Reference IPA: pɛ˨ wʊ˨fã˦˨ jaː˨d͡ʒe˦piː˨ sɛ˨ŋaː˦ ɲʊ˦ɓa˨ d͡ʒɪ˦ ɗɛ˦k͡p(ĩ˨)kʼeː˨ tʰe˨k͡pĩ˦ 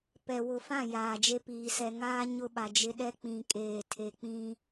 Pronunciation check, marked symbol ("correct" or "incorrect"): correct